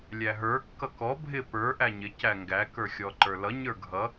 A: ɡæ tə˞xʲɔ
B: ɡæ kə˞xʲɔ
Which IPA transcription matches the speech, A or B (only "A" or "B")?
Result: B